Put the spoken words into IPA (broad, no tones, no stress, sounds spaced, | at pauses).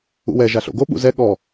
ṵ w ɛ ʒ a ɬ o̰ ɡ o ɓ ṵ z ɛ ɠ ɔ